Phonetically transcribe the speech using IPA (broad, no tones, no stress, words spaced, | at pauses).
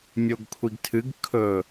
mʲoɡkʷʰiɡtʰɨɡ kʰɵ